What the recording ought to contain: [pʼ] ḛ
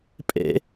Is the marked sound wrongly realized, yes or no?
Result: no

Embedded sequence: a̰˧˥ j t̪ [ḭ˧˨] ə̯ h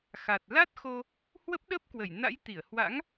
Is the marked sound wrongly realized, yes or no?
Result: yes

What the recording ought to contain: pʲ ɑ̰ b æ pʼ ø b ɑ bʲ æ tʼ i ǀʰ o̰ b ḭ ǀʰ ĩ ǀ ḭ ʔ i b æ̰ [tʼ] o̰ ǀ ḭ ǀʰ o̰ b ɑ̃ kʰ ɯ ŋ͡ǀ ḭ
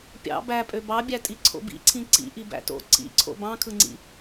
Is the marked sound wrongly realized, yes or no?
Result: yes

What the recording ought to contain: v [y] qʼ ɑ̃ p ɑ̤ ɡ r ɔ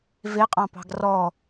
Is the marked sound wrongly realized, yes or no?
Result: yes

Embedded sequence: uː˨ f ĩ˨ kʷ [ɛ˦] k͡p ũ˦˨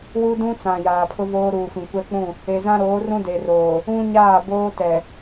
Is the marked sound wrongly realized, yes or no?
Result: no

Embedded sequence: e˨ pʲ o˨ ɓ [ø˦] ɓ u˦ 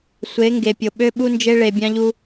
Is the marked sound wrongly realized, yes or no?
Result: no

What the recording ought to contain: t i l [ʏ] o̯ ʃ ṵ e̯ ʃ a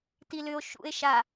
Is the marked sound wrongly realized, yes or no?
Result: no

